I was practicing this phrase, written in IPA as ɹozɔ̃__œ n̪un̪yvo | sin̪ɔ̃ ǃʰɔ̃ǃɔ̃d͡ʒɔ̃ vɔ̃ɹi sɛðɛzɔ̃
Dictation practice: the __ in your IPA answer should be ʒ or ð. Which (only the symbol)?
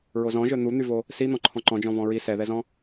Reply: ʒ